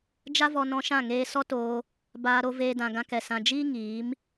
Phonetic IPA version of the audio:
d͡ʒa˦vɔ˧nɔ̃˧ʃã˦˨ ŋeː˧sɔ˦ toː˧ | baː˧ɾo˧veː˧ dã˨ɡã˧kɛ˨ sã˨d͡ʒiː˦ ŋiː˨˦m

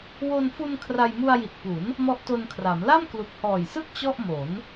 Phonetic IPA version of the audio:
wo˧nfu˧n kʰra˧jmu˧a̯ji˨˩t̚ pu˩˦n | mɔ˦˥ʔto˧nkʰra˩˦m la˥˩mklu˨˩k̚hɔː˨˩jsɯ˥˩k̚ t͡ɕɔ˥˩ʔmo˩˦n

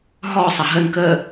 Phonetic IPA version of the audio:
ɦɔ sˤɐɦən kə

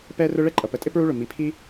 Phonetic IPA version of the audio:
pɛ˥rʊ˥ ɭɛ˥ǃʼʌ˩pə˩tʼɪ˥ pɹu˥ɭʊ˩ mi˩pʰi˥

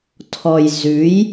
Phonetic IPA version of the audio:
tʰɔ˨j zʉ˨˦j

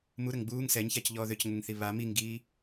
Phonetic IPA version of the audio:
muɾəŋ ɡ͡buːŋ sɛɲçac ʎɔːðøcŋəŋθi βa miŋɡiː

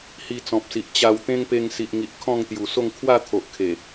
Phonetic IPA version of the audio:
hi˧t͡sɔ̃˨p̚si˨ʔ t͡ɕa˧wt̪ẽ˦ŋ pe˧ŋsi˨ʔŋi˨ʔ kʰɔ̃˥˧ŋt̪ju˨˩so˥˧ŋ kʰwa˥˧t̪ʰo˨ʔkʰe˨˩

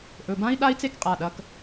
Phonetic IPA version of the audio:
ʔɵ˩˧˩bã˦˥i̯ ɗa˦˥i̯t͡se˦˥kqʼa˩˧˩ ɗɐ˩˧˩k

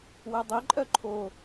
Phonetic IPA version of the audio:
wɛdˤiǃʼœ ǃʰo

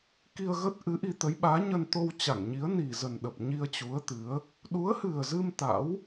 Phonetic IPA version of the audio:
ki˧ə̯ɣə˦˥t̚ ʔɨ˨˦ʔi˧t̪ə˨˦jɓaː˨˦ ɲə˧nt̪o˧w t͡ɕa˧˩ŋɲi˨˦ə̯ni˨˩zə˨˩n ɗə˨˩p̚ ɲi˧ə̯t͡ɕu˨˦ə̯t̪ɨ˨˦ə̯ | ɗu˨˦ə̯hɨ˨˩ə̯zɨ˧m t̪a̰˧˥w

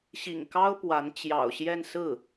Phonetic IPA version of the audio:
ɕḭ˨˩ŋkɑ˥ʊ̯ pwa˧˥n t͡ɕjɑ̰˨˩ʊ̯ɕjɛ˥˧nsɹ̩˥˩

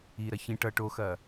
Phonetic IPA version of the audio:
iɾɐ çĩ ʈʌ ʈoxɐː

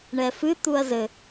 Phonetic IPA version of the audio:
ɳɛfɨ t̪uɐ̯zɘ

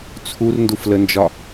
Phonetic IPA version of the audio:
t͡sʰurnduflənd͡ʒɒ

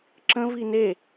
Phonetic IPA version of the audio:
ǁə̃vi ne

